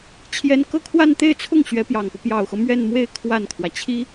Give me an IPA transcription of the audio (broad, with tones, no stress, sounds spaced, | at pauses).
t͡ɕʰ j ɛ˥ n k ɤ˥˧ kʰ w a˥˧ n t̪ e˥˧ ɪ̯ t͡sʰ ʊ˥˩ ŋ ɕ ɥ ɛ˧˥ p j ɑ˨˩ ŋ p ɤ˦ p j ɑ˨˩ ʊ̯ x ɤ˦ m ɥ ɛ˥˧ n m w e˥˧ ɪ̯ kʰ w a˥˩ n kʰ w ä˩ t͡ɕʰ i˥